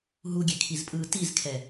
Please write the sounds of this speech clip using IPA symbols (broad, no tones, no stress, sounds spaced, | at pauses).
ɦ u ɡʲ e kʰ i z pʼ ɯː t i z kʰ ɛ